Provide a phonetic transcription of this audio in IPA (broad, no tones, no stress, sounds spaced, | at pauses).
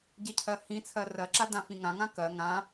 ɟ e cʰ ɜ h ĩ t͡sʰ ɜ r ɜ ǁ a d ã f ĩ ŋ ã ŋ ã k ɜ ŋ ã